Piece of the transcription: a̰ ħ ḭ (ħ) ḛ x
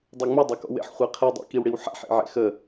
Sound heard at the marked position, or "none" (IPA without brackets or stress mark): ʕ